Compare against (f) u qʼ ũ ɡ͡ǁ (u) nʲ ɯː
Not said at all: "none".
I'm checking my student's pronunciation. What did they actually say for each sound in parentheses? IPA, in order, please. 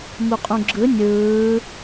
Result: m, ɯ

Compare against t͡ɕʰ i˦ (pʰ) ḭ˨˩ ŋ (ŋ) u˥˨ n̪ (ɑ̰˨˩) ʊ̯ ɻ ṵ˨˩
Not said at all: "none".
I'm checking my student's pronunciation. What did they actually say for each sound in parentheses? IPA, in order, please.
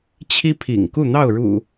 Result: pʰ, k, ɑ˥˨

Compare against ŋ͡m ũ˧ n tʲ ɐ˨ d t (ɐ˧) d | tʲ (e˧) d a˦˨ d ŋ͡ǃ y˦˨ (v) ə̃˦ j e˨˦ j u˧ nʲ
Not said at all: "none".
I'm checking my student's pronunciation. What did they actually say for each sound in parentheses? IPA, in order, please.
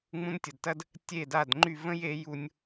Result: ɐ˦, e˦˨, v

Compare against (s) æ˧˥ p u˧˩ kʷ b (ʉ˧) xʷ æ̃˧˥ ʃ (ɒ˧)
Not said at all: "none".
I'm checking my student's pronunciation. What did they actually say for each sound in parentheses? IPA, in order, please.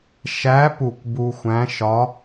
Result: ʃ, u˧, ɒ˧˥

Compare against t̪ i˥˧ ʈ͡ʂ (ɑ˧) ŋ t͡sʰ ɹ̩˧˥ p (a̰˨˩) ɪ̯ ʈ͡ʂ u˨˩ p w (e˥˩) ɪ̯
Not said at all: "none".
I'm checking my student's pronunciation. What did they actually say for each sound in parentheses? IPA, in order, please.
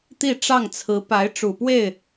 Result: ɑ˥˩, a˧˥, e˥˩

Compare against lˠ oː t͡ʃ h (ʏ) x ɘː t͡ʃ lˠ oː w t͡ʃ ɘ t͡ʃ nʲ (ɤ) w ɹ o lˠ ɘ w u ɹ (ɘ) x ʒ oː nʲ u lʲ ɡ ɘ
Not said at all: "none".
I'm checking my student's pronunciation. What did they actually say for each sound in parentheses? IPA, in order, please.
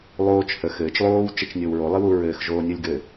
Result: ə, o, ɘː

